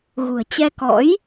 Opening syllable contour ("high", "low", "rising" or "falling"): low